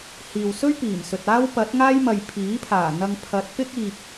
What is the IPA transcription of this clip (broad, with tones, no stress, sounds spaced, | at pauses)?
h iː˨ w s ɵ˥ ɥ p iː˨˩ m s ɵ˨ t̚ aː˥ w p ɐ˨˥ t̚ ŋ aː˥ j m ɐ˨ j pʰ iː˨˥ pʰ aː˨˩ n̪ ɐ˧ ŋ pʰ ɐ˨˥ t̚ p ɪ˥ k̚ iː˨ p̚